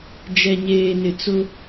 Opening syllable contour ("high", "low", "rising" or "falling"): low